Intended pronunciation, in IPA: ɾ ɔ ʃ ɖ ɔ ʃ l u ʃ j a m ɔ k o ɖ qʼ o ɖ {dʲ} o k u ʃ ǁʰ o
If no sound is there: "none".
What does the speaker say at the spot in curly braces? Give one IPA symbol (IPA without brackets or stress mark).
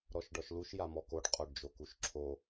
d͡ʒ